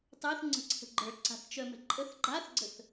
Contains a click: yes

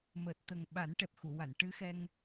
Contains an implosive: yes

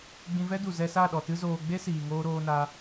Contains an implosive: yes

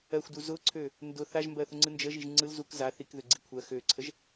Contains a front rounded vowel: yes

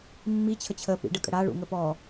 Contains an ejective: yes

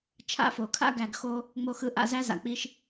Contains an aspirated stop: yes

